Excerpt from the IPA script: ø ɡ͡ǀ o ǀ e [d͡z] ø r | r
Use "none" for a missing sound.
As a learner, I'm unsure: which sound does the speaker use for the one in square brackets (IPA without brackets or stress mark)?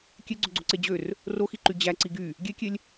d͡ʑ